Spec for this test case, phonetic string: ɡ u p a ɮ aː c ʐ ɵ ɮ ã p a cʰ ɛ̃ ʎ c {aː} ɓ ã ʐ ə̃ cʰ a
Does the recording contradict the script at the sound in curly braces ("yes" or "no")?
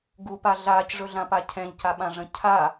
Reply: yes